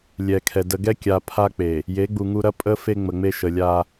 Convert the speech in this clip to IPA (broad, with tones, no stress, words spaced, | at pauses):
lʲɛ˨kʰɛ˨ də˨ɡɛ˦kʲa˨ pʰa˦k͡pe˨ | je˨˦ɡ͡bu˨ŋu˦ ɾɐ˦ pʼə˦ fe˦ŋ͡mə˨ŋ͡me˦ʃə˨ lʲa˦